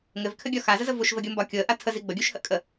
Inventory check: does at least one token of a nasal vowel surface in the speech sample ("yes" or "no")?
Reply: no